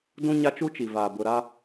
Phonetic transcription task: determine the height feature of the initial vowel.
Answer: high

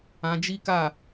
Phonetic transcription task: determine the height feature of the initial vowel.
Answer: low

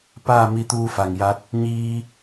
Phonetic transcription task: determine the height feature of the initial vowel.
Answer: low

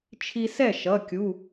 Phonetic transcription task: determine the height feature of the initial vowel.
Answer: high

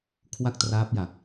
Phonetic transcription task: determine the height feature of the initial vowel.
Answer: low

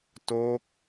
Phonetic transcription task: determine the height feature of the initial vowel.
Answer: mid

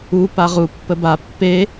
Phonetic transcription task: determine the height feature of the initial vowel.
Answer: high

